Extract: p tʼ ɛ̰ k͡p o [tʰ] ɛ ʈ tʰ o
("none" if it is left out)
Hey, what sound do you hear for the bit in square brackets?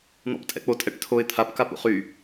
tʼ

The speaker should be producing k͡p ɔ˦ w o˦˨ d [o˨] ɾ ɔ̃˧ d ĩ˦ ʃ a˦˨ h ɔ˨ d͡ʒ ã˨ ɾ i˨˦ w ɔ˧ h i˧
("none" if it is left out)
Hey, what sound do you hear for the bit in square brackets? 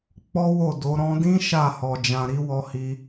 o˨˦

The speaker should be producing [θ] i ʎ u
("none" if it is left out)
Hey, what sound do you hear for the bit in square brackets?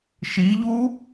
ʃ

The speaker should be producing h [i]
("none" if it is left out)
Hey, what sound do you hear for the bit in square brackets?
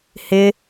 ɪ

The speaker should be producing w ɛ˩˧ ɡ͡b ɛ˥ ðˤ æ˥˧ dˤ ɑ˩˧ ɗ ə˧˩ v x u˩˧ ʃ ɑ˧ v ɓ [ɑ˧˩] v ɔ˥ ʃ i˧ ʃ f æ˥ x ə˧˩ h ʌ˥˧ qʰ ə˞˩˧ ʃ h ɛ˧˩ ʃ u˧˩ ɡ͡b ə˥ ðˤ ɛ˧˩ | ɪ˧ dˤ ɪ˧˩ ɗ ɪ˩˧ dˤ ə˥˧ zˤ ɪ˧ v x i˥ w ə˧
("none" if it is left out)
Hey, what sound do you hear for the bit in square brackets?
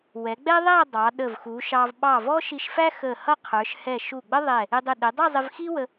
ɑ˧˩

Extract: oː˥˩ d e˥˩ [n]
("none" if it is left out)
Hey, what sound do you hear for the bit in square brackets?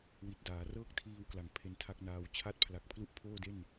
n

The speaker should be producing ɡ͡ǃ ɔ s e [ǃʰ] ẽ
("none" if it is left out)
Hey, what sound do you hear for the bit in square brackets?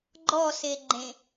ɡ͡ǃ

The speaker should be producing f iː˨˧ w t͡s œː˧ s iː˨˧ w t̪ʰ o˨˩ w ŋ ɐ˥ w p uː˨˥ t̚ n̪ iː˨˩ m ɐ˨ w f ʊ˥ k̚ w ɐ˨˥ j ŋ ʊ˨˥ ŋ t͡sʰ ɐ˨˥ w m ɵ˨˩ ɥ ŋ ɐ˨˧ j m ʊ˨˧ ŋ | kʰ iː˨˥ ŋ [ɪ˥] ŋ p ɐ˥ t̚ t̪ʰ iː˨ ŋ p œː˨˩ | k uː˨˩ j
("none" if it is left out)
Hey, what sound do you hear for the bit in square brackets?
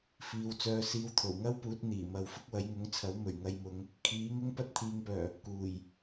ɪ˥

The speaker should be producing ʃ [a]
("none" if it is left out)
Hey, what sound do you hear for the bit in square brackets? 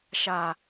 a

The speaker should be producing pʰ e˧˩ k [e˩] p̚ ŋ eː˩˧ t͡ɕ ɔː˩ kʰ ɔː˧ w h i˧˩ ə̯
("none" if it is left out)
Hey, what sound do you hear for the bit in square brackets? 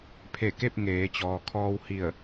e˥˨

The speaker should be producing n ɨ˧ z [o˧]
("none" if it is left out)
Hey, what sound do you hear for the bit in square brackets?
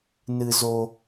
o˧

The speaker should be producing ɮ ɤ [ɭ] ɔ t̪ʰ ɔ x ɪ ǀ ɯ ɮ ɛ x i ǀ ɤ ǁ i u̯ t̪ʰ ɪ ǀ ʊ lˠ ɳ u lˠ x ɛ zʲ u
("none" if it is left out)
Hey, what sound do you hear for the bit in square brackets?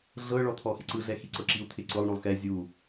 ɭ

